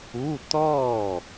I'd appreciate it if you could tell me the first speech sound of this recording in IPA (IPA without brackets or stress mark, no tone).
u